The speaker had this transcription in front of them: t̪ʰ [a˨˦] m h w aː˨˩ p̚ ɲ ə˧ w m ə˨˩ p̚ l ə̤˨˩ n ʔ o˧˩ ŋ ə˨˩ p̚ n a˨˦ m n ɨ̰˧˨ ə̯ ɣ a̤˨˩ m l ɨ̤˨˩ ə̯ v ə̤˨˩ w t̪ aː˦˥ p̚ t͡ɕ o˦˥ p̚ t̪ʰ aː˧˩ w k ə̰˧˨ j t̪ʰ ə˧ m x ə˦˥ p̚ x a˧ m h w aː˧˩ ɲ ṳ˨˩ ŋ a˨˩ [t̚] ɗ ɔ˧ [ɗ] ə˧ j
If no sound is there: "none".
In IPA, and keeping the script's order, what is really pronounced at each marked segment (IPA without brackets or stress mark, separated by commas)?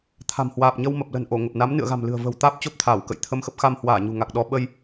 a̤˨˩, k̚, ɓ